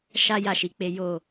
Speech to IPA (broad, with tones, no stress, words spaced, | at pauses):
ʃa˦ ja˦˨ʃi˨˦k͡pe˦ jo˦˨